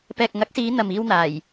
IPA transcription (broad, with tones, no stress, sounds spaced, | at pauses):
p ɛː˨ k̚ ŋ ɐ˨˥ k̚ s iː˨˧ n̪ ɐ˨ m iː˧ w n̪ aː˨˩ j